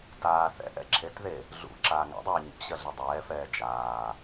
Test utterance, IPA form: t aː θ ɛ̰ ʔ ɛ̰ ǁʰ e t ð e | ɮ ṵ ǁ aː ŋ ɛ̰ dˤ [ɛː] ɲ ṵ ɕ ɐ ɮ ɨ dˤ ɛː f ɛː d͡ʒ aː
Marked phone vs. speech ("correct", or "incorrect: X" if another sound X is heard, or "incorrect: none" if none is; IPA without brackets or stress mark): correct